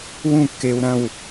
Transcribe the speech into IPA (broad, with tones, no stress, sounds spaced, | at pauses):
w ũ˥˨ kː e˧ w ɾ ɐ̃˥˨ w